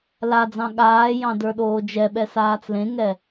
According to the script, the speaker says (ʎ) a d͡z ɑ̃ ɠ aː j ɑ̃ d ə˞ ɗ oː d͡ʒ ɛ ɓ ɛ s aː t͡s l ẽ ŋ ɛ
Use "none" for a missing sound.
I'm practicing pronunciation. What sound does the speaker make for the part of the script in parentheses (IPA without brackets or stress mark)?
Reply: l